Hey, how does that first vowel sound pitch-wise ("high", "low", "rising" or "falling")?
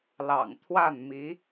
low